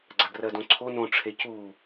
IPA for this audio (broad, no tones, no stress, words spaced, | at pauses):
ɡ͡ǀaɡrɜdõǀʰo nõ ʈ͡ʂʰecu